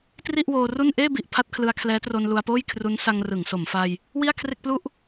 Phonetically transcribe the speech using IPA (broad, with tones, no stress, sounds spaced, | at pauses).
t r i˥˩ ʔ w oː˧ r u˥˩ n ʔ eː˥˩ b i˨˩ ʔ pʰ a˥˩ t̚ kʰ l ɯ˧ a̯ kʰ l ɛː˦˥ t r o˧ n l u˧ a̯ p oː˥˩ j kʰ r u˦˥ n s a˧ ŋ r ɯ˩˦ ŋ s o˩˦ m f a˧ j | w i˥˩ a̯ kʰ r e˥˩ k̚ p l u˥˩ ʔ